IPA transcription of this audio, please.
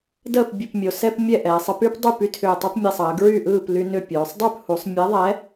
d əː˥˨ p bʲ ɯ˧˩ p mʲ o˩˧ s ɛ˦ p mʲ ɛ˥˨ ʔ ɛː˩˧ sˤ ɯ˦ p y˦ p dˤ y˥˨ p y˦ tʰ ʏː˧˩ tˤ y˦ p mʲ ɛ˧˩ sˤ əː˩˧ ɡ ɹ y˥˨ ʔ ɯː˥˨ p l y˦ n ʏ˥˨ pʲ oː˩˧ sˤ dˤ y˥˨ p h u˩˧ sˤ mʲ ɛ˨˥ ðˤ ɛ˨˥

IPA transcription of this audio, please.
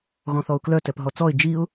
ɣ ɔ̃ θ ɔ ʊ̯ k l œ t ɛ p ɦ ɔ t͡s ɔ ɪ̯ d͡ʒ i ʊ̯

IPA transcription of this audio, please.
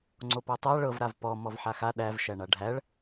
ŋ͡ǀ o p ɔ tˤ a ɭ ɤ v ɾ a v p ɔ m ɔ v ħ a x a ɗ æ v ʃ æ ɳ a ɖʱ æ ɭ

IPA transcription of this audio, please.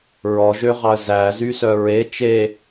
ɹ ɔ ʒ ø ʁ ɑ ə̯ z æ z y s œ ɹ e t͡ʃ e

